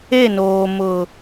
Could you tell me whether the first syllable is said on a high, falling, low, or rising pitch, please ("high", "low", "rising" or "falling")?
falling